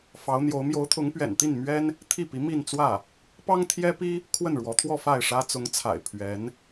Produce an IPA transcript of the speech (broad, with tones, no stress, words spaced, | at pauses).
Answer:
fɑ˧˥ʊ̯n̪jo˧˥ʊ̯ mjo˧˥ʊ̯t̪ʰʊ˧˥ŋpɥɛ̰˨˩nt̪i˥˩n mɥɛ˥n | t̪ʰi˥˩pi˧˥ mi˥˧nt͡swä˥˩ | pɑ˥ŋt̪ʰjɛ˥pi˥ | kʰwə˥˩nɻwɔ˧˥t̪ʰwɔ˥˧ fa˥˩ɪ̯ʂä˥ t͡sʊ˧˥ŋt͡sʰa̰˨˩ɪ̯ pʰɥɛ˧˥n